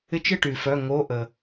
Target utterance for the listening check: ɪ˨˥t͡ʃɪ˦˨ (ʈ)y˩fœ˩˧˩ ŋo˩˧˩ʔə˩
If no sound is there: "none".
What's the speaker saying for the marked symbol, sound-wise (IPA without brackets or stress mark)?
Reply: ʈ